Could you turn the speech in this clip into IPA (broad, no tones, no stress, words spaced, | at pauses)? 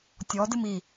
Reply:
tʲɔ dɨmi